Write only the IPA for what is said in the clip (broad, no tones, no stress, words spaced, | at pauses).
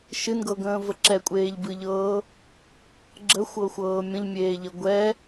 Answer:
ʃɨnɡɤɡə̃ːvə ǁɛkʷʼeːʎbɨʎɤː | ɡ͡ǁəxʷɤxʷɤː mʲə̃ʎmʲeːʎə ɡʷɛ